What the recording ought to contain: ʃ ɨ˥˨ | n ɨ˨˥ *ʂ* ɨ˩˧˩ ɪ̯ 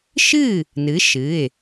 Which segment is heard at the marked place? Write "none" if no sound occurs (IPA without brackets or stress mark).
ʃ